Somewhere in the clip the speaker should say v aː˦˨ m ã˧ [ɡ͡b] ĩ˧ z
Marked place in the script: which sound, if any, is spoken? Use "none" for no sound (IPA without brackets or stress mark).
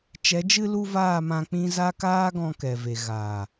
k͡p